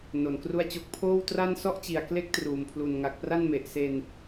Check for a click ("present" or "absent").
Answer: absent